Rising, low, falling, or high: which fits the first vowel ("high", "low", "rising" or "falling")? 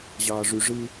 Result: low